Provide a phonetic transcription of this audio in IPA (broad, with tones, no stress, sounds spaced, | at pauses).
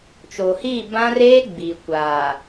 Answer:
t͡ʃ o˨ h iː˦˨ b ã˦ r eː˦ ɡ͡b i˨ kʷ aː˨